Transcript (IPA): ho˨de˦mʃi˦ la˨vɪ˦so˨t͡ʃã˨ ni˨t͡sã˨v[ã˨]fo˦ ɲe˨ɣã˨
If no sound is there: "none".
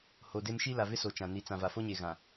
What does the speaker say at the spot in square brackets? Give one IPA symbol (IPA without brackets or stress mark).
a˨